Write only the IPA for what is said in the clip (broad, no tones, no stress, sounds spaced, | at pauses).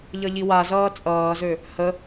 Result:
ʎ ʌ ʎ i w a z ʌː t͡sʼ ʌː z ø | h ə